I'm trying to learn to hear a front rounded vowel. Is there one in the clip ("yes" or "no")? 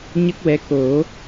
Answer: no